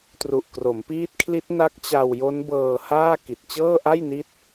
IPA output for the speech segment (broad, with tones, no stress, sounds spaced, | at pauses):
t r u˨˩ ʔ k r o˩˦ m p iː˦˥ t̚ kʰ l i˦˥ t̚ n a˦˥ k̚ t͡ɕ a˧ w j o˦˥ n b ɤː˧ h aː˥˩ k i˨˩ t̚ t͡ɕ ɤː˥˩ ʔ a˥˩ j n i˦˥ t̚